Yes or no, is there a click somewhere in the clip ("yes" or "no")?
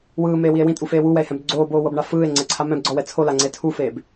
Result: yes